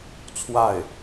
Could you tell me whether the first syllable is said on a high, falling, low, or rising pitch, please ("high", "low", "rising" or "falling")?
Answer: falling